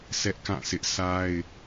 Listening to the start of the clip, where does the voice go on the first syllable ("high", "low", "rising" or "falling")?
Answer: high